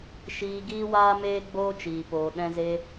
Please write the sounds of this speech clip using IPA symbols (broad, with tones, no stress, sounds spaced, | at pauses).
ʃ iː˧ ɡ iː˦ w aː˦ m eː˦ ɡ͡b oː˦ t͡ʃ iː˨ p oː˨ ɗ ɛ̃˧ z e˧